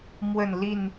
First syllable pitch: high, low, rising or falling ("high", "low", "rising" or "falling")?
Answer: falling